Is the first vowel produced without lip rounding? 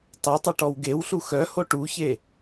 yes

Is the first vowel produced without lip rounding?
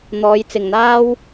no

